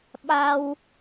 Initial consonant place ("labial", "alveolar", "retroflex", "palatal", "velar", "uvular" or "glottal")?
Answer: labial